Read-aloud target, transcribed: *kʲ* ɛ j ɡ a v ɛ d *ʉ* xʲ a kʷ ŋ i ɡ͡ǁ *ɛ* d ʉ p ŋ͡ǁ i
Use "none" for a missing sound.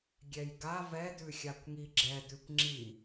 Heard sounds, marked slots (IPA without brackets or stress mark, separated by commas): ɡʲ, ʉ, ɛ